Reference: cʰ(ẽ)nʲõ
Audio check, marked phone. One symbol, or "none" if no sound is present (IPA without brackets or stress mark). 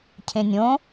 ẽ